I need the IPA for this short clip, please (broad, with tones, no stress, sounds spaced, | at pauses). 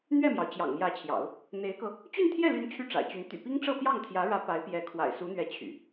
n̪ ɥ ɛ˥˩ m j ɑ˩ ʊ̯ t͡ɕ j ɑ̰˨˩ ŋ m j ä˧˥ t͡ɕʰ j ɑ̰˨˩˦ ʊ̯ | n̪ e˧˥ ɪ̯ k ɤ˧ | t͡ɕ y˥˧ n t̪ʰ j ɛ˥˩ l y˧˥ n t͡ɕʰ y˥˩ ʈ͡ʂ a̰˨˩ ɪ̯ t͡ɕ y˧˥ n t̪ y̰˨˩ p i˥ ŋ ʈ͡ʂ ɤ˥˧ p j ɑ˥˩ ŋ t̪ʰ j ä˧˥ ɻ ä˧˥ p a˧˥ ɪ̯ p j ɛ˧˥ kʰ w a̰˨˩ ɪ̯ s u˧˥ n̪ ɥ ɛ˧˥ t͡ɕʰ y̰˨˩˦